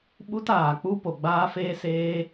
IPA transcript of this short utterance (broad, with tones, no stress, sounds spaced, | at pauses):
ɓ u˦ t aː˨ k͡p u˦ p o˨ ɡ͡b aː˦ f eː˦ s eː˦